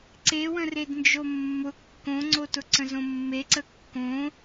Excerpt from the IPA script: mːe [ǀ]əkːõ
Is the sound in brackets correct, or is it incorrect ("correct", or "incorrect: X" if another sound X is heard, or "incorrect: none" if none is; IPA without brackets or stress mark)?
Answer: correct